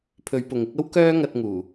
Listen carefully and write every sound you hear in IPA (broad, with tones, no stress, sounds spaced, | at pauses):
pʰ ɵ˨˧ ɥ p ʊ˨ ŋ ɪ˨˥ k̚ ɐ˥ w k œː˥ ŋ ɐ˧ t̚ ŋ uː˨˩